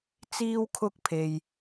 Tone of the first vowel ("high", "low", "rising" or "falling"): high